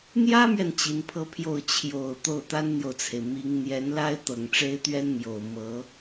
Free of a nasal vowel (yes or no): yes